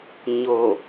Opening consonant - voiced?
yes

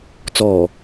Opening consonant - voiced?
no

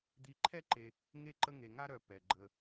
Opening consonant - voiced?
yes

